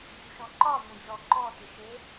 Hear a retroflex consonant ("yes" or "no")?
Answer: no